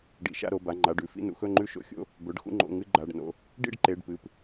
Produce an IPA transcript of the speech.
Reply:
ɖḭ˩˧˩ʃa̰˥˨ɾo˩˧˩ba˩˧˩ ŋ͡ǃa˩˧˩ɖʉ˥˨fḭ˥˨ nṵ˥˨xɵ˥˨ŋ͡ǃʉ˥˨ʃo̰˥˨ xʲo̰˥˨ | bɵ˩˧˩ɖ xṵ˥˨ŋ͡ǃo̰˩˧˩ŋɨ˥˨ ɡ͡ǃa˩˧˩ɖ no̰˩˧˩ | ɖḭ˥˨ɖ ǃe˩˧˩ɖpɨ˩˧˩p

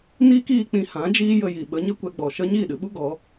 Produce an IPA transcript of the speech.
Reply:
niː˦kiː˧k͡pĩ˧ hã˨˦d͡ʒiː˦jə˧ ji˨ɓə˨˦ɲə˦ kʷɛ˧ɡ͡bɔ˨ʃə˦ ɲiː˦˨ɗɨ˨ɓu˦ ɡɔ˨˦

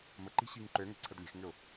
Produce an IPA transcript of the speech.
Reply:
məǃi̤ ɕiŋǃøŋɛ̤ ǀʰədlʲe̤xŋʏʊ̯

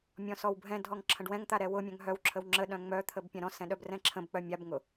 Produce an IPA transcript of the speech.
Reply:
mʲɔ̃sɔwbʱɛ̃dʱɔŋ ǁʰə̃ɖwɛ̃ŋt̪a ɾɛwʊmʲœ̃ŋ ɦœwǁʰəw ŋ͡ǁə ɗœ̃ŋ͡mœt̪ʰəb pʲãɾɔ̃sɛ̃ ɗœbrɛ̃ǁʰə̃bk͡pœ mʲabŋʊ

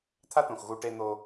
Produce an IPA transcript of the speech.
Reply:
t̪ʰa˦t̪õ˨x ɣu˧ʈe˧n̪o˧

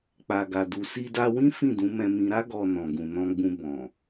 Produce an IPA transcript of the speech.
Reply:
k͡pa˨ɡa˨du˨ si˧da˧wĩ˦ fĩ˦˨dũ˨˦mɛ̃˧mĩ˧ ɾa˦ ɡɔ˧nɔ̃˨ ɡũ˨nɔ̃˧ɡ͡bũ˧ bɔ̃˨

